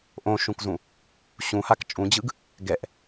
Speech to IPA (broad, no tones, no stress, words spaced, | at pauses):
ʔõʃũkzũ | ɕũhak t͡ʃʼũd͡ʑɯɡ | ɡɛʔ